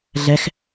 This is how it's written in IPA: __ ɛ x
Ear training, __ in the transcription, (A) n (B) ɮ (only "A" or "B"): B